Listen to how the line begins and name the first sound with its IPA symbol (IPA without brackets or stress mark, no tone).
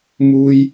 m